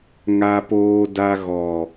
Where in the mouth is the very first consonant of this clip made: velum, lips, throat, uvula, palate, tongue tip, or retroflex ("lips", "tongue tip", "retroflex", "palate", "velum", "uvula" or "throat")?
velum